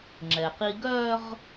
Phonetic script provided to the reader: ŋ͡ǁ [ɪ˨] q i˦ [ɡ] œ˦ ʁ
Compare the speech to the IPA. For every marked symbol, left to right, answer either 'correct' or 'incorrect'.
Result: incorrect: ɛ˨, correct

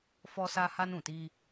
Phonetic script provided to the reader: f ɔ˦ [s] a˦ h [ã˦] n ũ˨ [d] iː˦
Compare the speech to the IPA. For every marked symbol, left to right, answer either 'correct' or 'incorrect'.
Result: correct, incorrect: a˦, incorrect: t

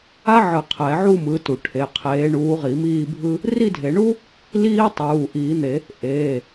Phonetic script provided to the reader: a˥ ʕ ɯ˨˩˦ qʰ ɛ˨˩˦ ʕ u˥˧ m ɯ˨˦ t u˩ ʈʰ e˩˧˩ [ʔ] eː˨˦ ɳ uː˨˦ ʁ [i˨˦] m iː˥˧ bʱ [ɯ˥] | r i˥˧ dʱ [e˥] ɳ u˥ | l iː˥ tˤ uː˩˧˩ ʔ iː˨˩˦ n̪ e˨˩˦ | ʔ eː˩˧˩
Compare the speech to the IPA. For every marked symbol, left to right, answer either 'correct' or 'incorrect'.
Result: incorrect: qʰ, incorrect: i˨˩˦, correct, incorrect: e˨˩˦

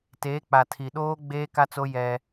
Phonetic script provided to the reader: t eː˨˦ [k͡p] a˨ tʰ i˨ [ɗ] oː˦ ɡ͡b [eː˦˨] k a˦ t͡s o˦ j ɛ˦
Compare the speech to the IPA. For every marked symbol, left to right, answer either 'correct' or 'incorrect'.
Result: correct, correct, incorrect: eː˦

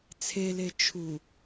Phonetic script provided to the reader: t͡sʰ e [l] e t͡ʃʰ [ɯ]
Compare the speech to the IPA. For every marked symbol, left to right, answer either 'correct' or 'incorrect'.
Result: correct, incorrect: u

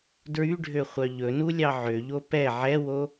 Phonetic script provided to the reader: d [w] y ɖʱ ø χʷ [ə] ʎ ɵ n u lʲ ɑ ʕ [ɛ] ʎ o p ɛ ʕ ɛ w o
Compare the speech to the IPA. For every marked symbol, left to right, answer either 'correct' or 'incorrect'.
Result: incorrect: ɹ, incorrect: œ, incorrect: ø

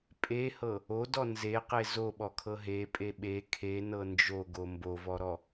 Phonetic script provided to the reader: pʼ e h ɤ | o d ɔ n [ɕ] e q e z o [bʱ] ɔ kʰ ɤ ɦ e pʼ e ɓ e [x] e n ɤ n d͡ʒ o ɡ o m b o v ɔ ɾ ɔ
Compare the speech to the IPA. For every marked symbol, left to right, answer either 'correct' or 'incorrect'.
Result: incorrect: z, incorrect: ɓ, incorrect: kʰ

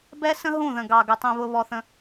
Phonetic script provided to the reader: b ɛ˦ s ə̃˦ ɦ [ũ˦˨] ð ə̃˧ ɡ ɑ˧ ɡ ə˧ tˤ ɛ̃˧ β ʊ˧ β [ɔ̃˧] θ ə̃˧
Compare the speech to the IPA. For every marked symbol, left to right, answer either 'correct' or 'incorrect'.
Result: correct, incorrect: ɔ˧

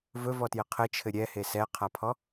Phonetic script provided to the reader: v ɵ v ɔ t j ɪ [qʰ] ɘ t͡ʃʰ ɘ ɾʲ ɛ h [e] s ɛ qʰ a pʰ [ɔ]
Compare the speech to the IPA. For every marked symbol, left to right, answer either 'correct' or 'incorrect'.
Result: correct, correct, correct

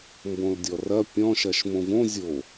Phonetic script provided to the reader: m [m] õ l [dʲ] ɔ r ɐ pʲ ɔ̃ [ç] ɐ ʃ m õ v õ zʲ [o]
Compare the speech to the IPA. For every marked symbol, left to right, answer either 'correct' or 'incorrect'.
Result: incorrect: b, correct, incorrect: ʃ, correct

